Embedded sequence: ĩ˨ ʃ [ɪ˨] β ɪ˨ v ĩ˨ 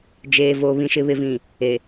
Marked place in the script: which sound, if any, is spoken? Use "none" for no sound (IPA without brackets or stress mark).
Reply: ɪ˨